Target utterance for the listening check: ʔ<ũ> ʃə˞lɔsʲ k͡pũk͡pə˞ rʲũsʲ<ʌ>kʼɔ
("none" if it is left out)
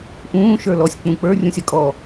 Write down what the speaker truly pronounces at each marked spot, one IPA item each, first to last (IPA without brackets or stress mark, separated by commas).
ũː, ʌ